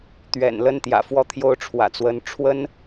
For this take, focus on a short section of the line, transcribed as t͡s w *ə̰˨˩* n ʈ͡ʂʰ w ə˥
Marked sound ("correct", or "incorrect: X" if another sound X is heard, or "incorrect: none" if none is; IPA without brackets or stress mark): incorrect: ə˧˥